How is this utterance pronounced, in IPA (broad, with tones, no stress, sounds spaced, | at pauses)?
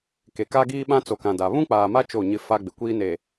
k e˨ k aː˦ ɡ iː˦ ɓ ã˦ t͡s o˨ k ã˨ d a˨ β ũ˦ k͡p aː˨ m a˦ t͡ʃ o˦˨ ɲ ɪ˦ f a˦ ɡ͡b ɪ˨ kʷ iː˦ n e˨